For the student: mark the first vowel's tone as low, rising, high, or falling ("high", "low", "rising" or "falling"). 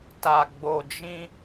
low